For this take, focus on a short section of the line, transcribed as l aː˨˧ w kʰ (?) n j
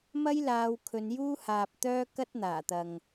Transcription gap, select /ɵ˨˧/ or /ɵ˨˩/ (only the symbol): ɵ˨˧